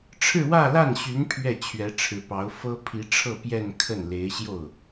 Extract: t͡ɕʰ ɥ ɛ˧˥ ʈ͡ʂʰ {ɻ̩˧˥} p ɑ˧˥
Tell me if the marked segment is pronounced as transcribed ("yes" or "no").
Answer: yes